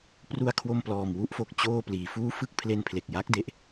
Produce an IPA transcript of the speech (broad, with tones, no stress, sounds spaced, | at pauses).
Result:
p r u˧ a̯ kʰ w o˧ m p l ɔː˨˩ m w u˦˥ ʔ f o˨˩ k̚ t͡ɕ oː˧ p l iː˩˦ f uː˦˥ f ɯ˦˥ k̚ pʰ l e˧ n pʰ l e˨˩ k̚ j a˦˥ k̚ d e˦˥ ʔ